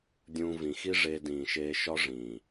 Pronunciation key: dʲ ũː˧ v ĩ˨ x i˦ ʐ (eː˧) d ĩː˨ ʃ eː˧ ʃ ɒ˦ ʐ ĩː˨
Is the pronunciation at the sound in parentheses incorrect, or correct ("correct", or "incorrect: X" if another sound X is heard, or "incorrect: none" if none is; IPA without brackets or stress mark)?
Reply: correct